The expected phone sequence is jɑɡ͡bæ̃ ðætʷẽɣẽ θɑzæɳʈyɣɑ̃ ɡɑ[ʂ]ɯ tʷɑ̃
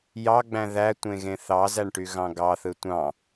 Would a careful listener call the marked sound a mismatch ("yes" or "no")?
yes